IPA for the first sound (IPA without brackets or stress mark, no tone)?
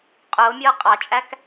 qʼ